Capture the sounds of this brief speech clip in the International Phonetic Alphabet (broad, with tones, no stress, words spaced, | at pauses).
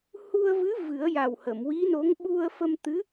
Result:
hu˧ə̯vɨ˧˥ vɨ˨˩˦ə̯ja˨˩whə˨˩˨m wi˧˥no˧˥ŋ ɓu˧ə̯fə˧m t̪ɨ˧˥